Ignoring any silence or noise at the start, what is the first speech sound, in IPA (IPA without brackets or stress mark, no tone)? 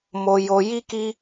m